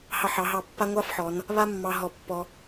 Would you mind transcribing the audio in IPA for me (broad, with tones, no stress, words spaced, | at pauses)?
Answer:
hɑ˧˩ħɑ˩˧ɦɑ˧˩ pːa˥ ŋʷɑ˥fħɔ˩˧n | βa˥mːɑ˧ ɦɔ˧˩pːɔ˧